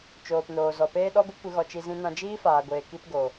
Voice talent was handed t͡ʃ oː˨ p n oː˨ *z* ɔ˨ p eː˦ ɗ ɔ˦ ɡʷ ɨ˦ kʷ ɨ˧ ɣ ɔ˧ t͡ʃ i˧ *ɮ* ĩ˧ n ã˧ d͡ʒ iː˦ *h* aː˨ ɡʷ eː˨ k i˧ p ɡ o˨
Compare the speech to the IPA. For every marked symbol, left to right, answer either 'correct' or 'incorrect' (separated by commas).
correct, incorrect, incorrect